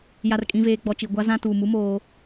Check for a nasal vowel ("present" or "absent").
present